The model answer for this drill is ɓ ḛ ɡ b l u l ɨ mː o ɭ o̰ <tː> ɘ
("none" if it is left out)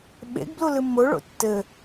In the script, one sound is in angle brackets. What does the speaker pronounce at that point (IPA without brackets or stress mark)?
tː